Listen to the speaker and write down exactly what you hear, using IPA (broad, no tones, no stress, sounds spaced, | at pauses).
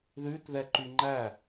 ð ʉ t ð ɛ ǃ y ŋ͡ǃ æ